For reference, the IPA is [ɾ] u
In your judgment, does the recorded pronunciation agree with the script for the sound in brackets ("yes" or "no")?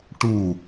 no